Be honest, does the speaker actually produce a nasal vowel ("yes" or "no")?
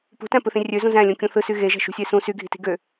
yes